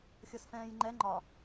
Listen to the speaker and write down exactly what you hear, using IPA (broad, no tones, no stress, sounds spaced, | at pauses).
xʲ ɤ s f ɛ̃ː j ŋ͡ǃ ɛ ŋ͡ǃ ɒ